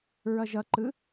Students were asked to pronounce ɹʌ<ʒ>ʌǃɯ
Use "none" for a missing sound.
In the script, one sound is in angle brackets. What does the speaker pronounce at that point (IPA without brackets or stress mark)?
ʒ